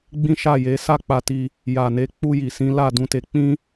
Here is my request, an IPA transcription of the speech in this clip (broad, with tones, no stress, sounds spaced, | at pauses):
ɡ͡b ĩ˦ ʃ a˦˨ j e˨˦ s a˦˨ k͡p a˧ t i˧ | j a˨ n e˨˦ k͡p u˧ j i˨ s ĩ˨˦ l a˦˨ d ũ˧ t e˧ k͡p ĩ˦